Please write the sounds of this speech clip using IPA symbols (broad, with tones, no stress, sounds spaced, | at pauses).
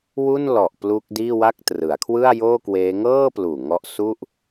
w u˥˩ n l ɔ˨˩ ʔ p l uː˦˥ k̚ d iː˥˩ w a˥˩ k̚ t r ɯ˩˦ a̯ kʰ w ɯ˥˩ a̯ j oː˥˩ k w eː˦˥ ŋ ɤː˥˩ p l uː˨˩ ŋ ɔ˦˥ ʔ s u˥˩ ʔ